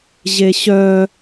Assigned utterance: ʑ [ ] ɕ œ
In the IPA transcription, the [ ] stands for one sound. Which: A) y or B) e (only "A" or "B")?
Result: B